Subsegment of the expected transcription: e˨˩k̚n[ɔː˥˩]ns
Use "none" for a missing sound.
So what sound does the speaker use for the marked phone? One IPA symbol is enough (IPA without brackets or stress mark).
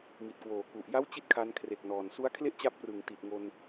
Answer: ɔː˨˩